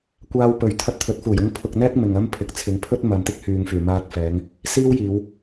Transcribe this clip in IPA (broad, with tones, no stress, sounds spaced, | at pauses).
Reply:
kʷ aː˧ w p ɵ˨˩ ɥ t̪ʰ ɐ˧ t̚ t̪ʰ ɵ˨˥ t̚ f uː˨˩ j ʊ˧ ŋ pʰ ʊ˨ k̚ n̪ ɛː˥ k̚ m ɪ˨ ŋ ɐ˥ m pʰ ɪ˨ k̚ t͡sʰ ɪ˨˧ ŋ pʰ ɵ˥ t̚ m ɐ˨ m t̪ ɪ˥ k̚ h yː˨ ŋ f yː˨˩ m aː˧ t̚ f ɛː˨˧ ŋ | s iː˥ w j iː˨˧ w